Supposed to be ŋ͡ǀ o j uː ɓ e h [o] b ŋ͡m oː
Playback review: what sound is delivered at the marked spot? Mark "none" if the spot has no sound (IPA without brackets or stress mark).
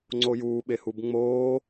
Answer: u